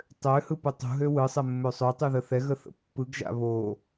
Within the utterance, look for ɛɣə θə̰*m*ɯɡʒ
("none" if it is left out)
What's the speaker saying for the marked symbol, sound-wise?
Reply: pː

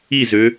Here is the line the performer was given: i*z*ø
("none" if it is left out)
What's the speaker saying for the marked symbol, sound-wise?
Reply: z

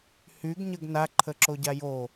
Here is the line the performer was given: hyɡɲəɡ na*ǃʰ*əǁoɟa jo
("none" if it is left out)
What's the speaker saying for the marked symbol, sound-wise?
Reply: ǃʰ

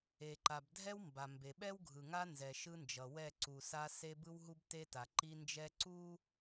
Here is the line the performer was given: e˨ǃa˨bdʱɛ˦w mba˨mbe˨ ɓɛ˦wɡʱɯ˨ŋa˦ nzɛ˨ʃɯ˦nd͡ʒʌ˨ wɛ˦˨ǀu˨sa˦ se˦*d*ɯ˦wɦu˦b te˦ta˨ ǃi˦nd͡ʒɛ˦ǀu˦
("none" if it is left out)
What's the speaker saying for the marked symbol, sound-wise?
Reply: b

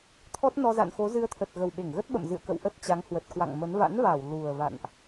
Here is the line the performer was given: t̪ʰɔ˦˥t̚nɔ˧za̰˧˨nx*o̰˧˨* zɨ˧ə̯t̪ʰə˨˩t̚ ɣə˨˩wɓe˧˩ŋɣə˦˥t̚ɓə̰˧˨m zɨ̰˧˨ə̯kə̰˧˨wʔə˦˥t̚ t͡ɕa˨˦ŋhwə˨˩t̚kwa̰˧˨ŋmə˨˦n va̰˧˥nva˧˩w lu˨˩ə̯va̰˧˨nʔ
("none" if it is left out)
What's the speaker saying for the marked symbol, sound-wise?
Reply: o˨˦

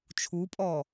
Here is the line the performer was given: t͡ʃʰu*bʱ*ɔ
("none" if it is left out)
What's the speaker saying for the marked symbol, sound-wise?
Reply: pʼ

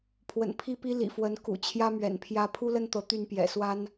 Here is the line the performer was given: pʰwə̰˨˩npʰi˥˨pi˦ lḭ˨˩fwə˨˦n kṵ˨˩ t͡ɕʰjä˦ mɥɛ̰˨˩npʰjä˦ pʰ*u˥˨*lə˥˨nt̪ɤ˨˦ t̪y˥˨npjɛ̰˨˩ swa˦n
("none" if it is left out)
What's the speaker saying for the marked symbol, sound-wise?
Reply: u˦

